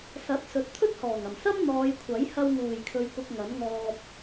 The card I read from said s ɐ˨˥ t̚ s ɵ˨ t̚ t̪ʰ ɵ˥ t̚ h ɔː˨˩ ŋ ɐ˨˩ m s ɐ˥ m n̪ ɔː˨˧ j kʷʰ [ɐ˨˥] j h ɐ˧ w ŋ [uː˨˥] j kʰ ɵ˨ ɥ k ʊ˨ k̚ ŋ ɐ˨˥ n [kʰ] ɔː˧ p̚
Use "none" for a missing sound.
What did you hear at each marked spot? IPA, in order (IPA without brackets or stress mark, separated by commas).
ɐ˨˥, uː˨˩, ŋ